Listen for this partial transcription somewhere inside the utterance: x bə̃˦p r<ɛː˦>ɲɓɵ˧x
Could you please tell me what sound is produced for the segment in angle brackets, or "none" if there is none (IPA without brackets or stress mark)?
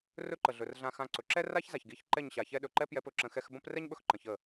ɛ˦